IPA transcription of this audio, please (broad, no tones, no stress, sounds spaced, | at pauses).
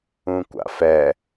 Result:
ũ kʷ a̰ f ɛ